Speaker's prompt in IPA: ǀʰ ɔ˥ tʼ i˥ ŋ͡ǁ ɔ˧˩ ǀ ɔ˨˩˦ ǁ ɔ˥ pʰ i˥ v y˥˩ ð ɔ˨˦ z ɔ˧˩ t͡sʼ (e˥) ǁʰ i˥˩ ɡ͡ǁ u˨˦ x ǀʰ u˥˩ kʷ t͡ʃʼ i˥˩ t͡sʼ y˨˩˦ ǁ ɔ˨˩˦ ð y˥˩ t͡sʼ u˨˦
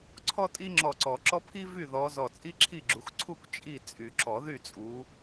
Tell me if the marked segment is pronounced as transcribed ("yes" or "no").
no